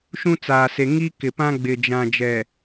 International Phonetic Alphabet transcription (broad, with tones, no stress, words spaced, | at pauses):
ʃũ˦t͡saː˨se˨ ŋi˦kɪ˨pã˦ ɡ͡bɪ˨d͡ʒã˨ d͡ʒɛ˨